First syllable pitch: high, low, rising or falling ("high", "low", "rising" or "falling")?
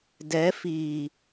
rising